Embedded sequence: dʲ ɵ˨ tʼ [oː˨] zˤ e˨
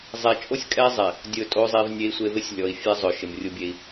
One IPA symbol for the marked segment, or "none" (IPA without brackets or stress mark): o˨